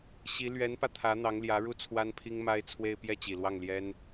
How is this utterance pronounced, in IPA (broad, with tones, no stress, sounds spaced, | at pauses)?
ɕ i˧˥ l ɥ ɛ˧˥ n p ä˧ t̪ʰ ä˧˥ n̪ ɑ˧˥ ŋ l j ä˧˥ ɻ u˥˩ t͡sʰ w a˥ n pʰ i˥ ŋ m a˥ ɪ̯ t͡sʰ w e˥˧ ɪ̯ p j ɛ˥˩ t͡ɕ i˨˩ l w ɑ˥˩ ŋ l j ɛ˥ n